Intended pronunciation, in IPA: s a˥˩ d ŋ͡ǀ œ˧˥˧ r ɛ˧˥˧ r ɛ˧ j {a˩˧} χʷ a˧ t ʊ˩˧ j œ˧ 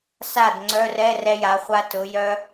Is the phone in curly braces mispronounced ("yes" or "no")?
no